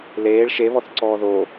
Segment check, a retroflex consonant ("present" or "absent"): present